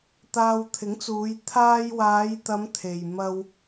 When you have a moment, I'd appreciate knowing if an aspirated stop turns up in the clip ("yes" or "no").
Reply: yes